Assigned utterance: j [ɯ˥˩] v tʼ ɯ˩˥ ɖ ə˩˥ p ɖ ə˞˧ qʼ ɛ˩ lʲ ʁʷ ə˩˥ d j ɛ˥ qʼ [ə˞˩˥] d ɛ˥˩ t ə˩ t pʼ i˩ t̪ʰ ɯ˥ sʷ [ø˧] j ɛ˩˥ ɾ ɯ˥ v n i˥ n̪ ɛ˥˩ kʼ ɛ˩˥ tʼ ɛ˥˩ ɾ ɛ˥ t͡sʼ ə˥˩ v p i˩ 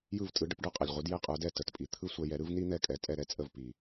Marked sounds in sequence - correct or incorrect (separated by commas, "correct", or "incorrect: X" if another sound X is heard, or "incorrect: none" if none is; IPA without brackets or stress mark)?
correct, correct, incorrect: ɛ˧